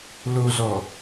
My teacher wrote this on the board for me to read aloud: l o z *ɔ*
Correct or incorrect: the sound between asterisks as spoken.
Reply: correct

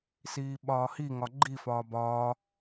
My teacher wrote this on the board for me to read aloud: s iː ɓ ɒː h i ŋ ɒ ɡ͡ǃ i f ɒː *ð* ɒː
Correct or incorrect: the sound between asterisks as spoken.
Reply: incorrect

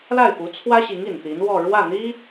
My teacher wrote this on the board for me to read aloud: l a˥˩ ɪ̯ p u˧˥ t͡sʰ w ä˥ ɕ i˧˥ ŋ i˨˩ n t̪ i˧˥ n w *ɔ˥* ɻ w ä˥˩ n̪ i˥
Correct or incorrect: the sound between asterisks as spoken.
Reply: incorrect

